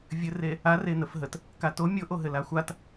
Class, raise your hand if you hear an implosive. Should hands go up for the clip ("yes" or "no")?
no